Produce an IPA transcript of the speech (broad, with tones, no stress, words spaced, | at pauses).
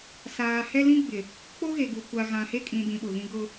saː˨ hɛ˦lĩ˦ɡ͡bɪ˨ | k͡po˦ ɣe˨ɡu˨ kʷa˨ɣã˨he˦ kʼĩ˨dĩ˨ ɓʊ˨ɣĩ˦ ɡʊ˦